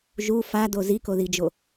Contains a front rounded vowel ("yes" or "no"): no